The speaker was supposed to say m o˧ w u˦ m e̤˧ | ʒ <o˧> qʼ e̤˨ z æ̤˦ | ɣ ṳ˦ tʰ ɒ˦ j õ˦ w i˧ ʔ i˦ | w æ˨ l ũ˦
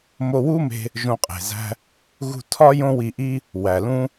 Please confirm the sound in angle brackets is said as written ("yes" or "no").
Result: no